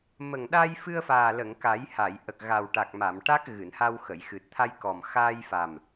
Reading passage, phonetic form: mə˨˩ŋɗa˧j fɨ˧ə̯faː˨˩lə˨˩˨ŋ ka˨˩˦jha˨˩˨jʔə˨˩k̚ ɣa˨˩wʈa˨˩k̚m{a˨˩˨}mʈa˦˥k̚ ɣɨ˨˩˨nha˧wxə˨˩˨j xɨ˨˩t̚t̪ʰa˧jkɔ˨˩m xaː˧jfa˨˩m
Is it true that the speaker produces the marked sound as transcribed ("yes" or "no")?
yes